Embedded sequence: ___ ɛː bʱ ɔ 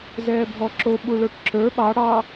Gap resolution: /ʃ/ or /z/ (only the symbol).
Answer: z